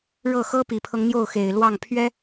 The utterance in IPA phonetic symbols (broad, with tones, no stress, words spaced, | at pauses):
ɻɤ˥˩ xɤ˥pi˨˩pʰɤ˦ŋ n̪jo˥˩ʊ̯xe˨˩ɪ̯lwɑ˥˩ŋ pʰɥɛ˥